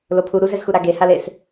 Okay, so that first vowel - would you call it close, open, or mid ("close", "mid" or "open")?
mid